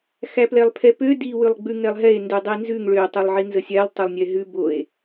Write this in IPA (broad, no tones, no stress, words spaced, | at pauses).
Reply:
xæplɛlˠpʰɛpø di wʉlˠɡ͡bʉŋɛlˠɦɛe̯ ndʉdˤinzʉŋ ɭø tˤølˠʕinzəsʲælˠ tˤɛlˠnʲɛɦʉ boe̯